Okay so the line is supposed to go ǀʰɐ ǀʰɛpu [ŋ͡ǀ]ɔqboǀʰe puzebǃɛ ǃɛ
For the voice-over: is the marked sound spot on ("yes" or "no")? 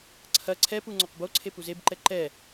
yes